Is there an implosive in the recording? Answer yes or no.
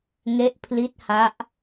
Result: no